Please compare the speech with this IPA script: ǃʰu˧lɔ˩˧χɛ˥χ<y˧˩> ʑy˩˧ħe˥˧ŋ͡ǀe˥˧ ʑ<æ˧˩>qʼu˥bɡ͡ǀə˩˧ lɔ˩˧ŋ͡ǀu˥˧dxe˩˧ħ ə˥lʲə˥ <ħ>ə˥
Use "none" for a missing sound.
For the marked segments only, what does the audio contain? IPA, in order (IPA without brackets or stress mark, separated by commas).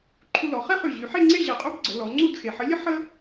y˧˩, ɛ˧˩, ħ